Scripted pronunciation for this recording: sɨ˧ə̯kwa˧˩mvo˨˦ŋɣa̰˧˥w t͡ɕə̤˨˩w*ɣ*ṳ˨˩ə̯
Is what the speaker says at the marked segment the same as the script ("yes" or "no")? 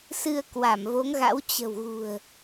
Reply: yes